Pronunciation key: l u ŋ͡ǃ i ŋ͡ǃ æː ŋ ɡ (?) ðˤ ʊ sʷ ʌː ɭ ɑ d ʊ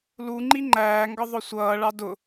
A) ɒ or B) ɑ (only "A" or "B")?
A